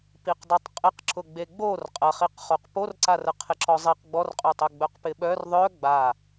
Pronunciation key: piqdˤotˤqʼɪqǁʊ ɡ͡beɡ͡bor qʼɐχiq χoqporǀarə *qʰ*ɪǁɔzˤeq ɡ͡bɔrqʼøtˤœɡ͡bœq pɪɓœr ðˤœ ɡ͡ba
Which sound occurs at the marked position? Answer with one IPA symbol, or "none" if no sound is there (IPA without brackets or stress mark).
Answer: qʰ